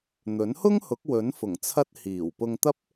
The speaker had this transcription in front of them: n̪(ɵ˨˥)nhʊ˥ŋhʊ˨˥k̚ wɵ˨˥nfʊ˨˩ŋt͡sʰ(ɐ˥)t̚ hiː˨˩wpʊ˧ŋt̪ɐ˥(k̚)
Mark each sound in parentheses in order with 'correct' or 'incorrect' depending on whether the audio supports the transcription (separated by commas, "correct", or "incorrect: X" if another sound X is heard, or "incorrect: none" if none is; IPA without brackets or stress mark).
correct, incorrect: ɐ˧, incorrect: p̚